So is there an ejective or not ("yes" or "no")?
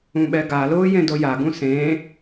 no